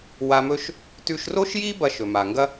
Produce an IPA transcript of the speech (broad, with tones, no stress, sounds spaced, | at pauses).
w a˧ m ɵ˥ ʃ | t ʉ˧ ʃ r o˥ ʃ j i˥ b ɐ˧ ʃ ɵ˩ m a˩ ŋ ɡ ɐ˥